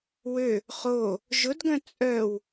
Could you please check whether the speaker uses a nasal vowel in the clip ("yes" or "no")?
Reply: yes